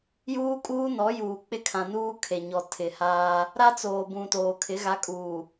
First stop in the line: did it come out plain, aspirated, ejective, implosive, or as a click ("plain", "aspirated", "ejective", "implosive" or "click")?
ejective